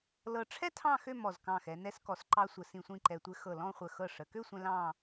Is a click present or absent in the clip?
present